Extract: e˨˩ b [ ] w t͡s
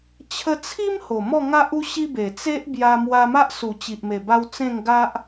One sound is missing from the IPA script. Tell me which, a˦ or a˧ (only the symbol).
a˧